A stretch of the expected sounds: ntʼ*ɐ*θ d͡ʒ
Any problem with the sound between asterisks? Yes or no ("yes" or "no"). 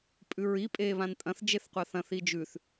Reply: yes